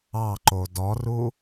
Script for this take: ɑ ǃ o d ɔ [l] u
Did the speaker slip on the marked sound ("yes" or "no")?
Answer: yes